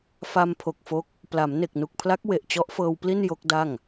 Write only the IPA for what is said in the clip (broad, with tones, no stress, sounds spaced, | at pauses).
f a˧ m pʰ o˨˩ k̚ f o˦˥ k̚ | p l a˩˦ m n e˨˩ k̚ n u˨˩ k̚ pʰ l a˦˥ k̚ w e˨˩ ʔ t͡ɕ ɔ˦˥ ʔ f ɤː˧ w p l i˥˩ n j o˦˥ k̚ d a˥˩ ŋ